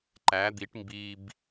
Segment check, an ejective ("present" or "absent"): absent